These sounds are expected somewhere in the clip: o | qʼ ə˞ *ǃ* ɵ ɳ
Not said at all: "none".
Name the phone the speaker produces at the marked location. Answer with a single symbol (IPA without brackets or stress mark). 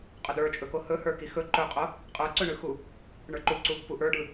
ǀ